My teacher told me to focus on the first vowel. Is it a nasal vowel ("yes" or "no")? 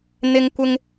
no